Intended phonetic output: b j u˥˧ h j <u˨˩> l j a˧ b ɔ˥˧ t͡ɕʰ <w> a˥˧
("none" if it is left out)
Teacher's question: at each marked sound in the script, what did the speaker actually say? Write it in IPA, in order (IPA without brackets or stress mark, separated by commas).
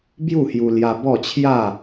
u˧, j